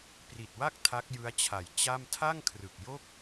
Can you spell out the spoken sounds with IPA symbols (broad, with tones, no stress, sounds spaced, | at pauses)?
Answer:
p r i˨˩ t̚ w a˥˩ k̚ tʰ a˦˥ k̚ j ɯ˦˥ a̯ t͡ɕʰ a˨˩ j t͡ɕ a˥˩ m tʰ a˥˩ ŋ kʰ r ɯ˨˩ k̚ j o˥˩ k̚